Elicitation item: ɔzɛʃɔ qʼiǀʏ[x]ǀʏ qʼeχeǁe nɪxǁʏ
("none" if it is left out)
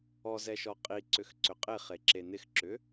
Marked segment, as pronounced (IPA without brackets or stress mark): x